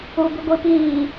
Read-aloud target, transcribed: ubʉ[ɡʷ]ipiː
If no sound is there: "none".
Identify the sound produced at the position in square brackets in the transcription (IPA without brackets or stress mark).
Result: ɡʷ